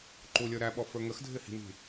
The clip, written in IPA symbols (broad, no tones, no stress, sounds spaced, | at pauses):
ǃ u lʲ ə˞ ɾ æ ɓ ɔ f ə˞ ŋ ə x dʱ ɪ h i̤ n i̤